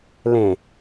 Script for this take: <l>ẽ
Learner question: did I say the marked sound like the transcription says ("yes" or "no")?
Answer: yes